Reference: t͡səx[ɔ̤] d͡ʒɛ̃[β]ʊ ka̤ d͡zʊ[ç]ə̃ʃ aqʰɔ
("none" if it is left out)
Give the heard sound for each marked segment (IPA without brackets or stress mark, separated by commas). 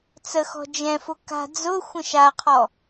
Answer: ɔ̤, f, xʷ